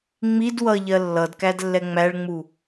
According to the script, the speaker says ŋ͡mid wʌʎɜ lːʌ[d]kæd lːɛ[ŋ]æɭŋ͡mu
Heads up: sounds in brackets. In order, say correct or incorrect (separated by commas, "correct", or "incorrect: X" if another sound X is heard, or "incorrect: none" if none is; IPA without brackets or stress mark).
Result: correct, incorrect: ŋ͡m